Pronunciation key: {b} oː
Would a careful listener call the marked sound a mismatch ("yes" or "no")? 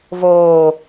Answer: yes